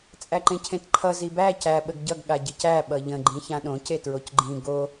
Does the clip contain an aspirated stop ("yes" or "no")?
yes